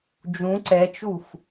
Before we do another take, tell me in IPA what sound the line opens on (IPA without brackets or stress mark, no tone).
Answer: d͡ʒ